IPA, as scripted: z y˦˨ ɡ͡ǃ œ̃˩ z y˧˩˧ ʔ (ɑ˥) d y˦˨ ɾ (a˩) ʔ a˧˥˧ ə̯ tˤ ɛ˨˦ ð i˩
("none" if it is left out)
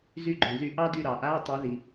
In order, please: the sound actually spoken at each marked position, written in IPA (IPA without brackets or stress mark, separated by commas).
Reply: ɑ˥, ɑ˩